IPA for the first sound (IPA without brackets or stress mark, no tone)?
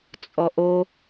t͡sʼ